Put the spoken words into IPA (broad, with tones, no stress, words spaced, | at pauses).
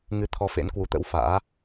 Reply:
ŋɨ˧t̪ʰɔ˧fḛ˧˥nkwu˨˦ t̪ə̰˧˥wfa̰ː˧˥